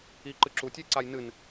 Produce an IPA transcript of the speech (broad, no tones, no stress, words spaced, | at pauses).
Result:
i ǃɨǁutʲujǀaj nɨn